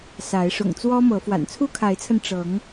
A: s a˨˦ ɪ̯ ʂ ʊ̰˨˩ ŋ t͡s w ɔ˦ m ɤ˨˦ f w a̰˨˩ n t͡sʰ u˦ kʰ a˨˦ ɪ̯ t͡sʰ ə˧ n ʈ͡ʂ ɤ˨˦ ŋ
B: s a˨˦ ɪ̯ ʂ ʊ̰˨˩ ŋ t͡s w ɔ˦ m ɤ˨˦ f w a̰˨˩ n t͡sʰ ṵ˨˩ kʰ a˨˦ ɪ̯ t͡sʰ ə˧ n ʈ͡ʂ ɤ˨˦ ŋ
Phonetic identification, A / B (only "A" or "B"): A